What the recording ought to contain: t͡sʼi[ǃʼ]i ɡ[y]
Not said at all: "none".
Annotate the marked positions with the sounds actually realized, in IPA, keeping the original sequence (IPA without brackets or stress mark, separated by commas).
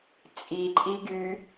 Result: ǃʼ, y